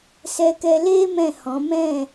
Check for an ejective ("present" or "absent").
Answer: absent